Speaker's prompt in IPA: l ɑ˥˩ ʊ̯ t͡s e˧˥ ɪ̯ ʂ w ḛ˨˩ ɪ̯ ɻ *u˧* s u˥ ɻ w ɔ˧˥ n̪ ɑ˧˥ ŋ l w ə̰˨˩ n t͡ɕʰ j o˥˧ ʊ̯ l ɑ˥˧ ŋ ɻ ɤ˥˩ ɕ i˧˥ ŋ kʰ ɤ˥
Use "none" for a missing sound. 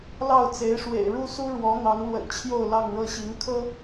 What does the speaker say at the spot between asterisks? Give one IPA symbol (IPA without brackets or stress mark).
u˥